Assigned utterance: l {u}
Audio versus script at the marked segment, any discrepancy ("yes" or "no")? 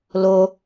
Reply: yes